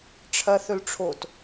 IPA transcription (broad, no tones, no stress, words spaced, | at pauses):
ʈ͡ʂʰɐθɵlʈ͡ʂʰot